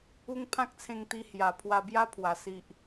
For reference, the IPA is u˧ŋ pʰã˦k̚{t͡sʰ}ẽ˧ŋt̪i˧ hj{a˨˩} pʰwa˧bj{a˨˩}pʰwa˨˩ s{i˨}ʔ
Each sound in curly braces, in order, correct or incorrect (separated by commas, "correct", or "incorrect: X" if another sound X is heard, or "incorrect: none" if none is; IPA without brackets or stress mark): correct, correct, incorrect: a˦, correct